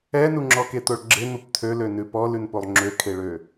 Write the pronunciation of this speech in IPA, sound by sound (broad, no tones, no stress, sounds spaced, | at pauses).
ɛ n u ŋ͡ǁ ɔ k e t̪ o ɭ ɡ͡ǁ e n̪ u p tʰ ø l ø n ʉ p ɔ l ʉ n p o lˠ ŋ͡ǁ ø kʰ e ɭ ø